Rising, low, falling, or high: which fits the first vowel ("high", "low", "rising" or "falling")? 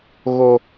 high